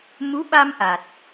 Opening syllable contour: rising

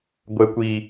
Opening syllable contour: low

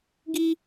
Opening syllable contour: high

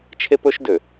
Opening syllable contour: high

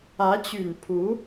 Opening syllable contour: rising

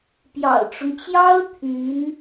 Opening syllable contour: low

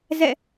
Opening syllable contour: falling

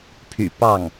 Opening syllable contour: low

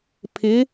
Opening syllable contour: rising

